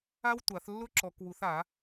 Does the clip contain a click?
yes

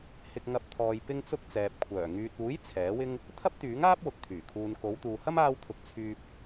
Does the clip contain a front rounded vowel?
yes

